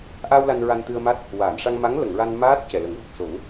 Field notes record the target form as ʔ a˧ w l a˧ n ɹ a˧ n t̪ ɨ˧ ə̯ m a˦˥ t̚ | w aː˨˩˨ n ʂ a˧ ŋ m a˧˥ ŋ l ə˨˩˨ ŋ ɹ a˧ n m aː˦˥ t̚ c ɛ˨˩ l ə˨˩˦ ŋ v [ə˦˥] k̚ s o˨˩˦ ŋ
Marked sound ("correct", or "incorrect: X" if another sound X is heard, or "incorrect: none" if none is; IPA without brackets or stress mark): incorrect: ə˨˩